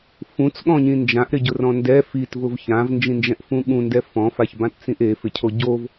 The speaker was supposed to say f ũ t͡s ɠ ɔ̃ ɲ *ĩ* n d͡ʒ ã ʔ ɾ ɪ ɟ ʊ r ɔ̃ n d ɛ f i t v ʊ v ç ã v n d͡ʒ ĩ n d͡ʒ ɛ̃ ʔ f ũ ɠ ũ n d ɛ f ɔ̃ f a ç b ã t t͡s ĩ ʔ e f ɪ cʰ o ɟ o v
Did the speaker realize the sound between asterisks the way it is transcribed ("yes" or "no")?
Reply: yes